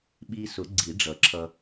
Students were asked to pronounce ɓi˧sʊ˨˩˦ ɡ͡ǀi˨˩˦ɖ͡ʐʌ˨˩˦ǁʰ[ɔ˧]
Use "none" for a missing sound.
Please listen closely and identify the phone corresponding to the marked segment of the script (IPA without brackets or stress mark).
ʌ˧